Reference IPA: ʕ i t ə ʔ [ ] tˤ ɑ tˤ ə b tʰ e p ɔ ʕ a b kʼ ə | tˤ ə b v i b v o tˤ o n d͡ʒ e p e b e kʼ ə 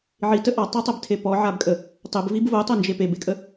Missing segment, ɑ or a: ɑ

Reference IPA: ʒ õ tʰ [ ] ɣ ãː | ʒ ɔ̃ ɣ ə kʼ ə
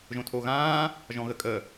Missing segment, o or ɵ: o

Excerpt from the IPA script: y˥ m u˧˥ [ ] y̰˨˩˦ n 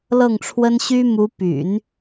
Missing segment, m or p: p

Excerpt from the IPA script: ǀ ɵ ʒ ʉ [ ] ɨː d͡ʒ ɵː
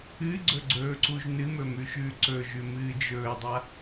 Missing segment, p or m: m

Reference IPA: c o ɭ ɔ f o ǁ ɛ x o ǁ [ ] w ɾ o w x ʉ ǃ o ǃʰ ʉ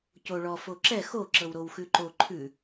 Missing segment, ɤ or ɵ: ɤ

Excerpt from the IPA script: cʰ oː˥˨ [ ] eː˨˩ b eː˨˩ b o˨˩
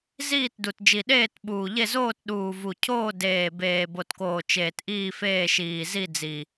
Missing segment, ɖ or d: d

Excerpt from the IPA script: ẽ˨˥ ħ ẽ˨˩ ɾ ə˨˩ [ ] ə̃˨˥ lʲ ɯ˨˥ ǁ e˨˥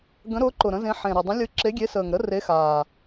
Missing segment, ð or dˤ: dˤ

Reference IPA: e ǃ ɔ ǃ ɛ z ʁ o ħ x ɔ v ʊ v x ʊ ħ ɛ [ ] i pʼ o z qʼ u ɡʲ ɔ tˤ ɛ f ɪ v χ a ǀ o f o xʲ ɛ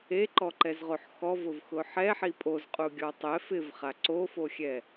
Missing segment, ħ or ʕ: ħ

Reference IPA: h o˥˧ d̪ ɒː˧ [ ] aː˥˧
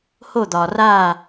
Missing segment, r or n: r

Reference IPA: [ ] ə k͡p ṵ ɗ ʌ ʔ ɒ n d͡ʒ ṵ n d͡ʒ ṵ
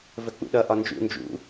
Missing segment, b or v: v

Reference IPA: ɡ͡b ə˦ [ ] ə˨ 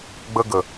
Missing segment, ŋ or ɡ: ɡ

